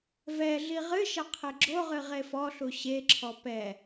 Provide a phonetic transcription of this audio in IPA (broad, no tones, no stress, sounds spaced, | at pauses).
v ɛ ɮ i ʁ ɨ ʃ ɐ qʰ e ɡ͡ǁ o ʁ ɨ ʁ e f ɔ ɬ u ɕ e ǁʰ ɔ p ɛ